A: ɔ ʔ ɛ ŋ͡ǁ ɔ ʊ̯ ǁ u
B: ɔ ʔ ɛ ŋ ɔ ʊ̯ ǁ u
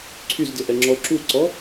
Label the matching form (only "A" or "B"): A